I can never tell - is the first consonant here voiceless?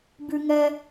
no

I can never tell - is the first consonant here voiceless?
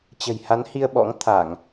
yes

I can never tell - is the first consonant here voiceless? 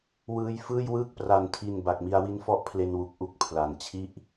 no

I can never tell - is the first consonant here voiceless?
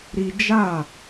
no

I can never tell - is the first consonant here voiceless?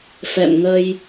yes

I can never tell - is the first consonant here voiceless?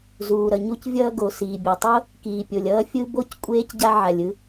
no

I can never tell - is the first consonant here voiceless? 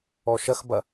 yes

